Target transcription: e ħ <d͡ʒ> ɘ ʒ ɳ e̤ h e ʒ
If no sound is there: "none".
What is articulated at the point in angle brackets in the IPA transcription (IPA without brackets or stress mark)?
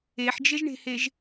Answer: d͡ʒ